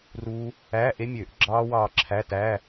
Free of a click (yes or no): no